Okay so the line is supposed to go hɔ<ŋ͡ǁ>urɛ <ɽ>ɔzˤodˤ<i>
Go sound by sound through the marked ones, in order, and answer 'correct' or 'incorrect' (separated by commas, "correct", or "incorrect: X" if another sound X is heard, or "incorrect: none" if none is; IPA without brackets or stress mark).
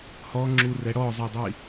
correct, correct, correct